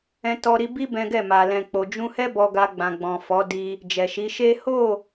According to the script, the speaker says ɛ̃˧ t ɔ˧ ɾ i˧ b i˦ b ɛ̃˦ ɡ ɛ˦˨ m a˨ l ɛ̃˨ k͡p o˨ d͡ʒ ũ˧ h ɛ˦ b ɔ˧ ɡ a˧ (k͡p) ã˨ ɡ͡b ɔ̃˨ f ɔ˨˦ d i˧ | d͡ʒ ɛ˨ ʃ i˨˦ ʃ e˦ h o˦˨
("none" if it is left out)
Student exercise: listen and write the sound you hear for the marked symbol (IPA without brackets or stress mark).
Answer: ɡ͡b